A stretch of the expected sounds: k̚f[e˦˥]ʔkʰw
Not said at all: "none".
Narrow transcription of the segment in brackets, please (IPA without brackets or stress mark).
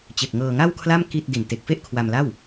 e˥˩